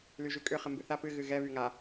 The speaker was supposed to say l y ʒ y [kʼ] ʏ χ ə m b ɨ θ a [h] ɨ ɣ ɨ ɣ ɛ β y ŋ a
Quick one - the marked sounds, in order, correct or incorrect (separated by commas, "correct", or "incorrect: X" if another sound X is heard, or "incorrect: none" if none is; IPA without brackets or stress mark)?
correct, incorrect: p